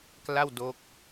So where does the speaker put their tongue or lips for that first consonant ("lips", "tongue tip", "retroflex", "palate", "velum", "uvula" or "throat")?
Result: velum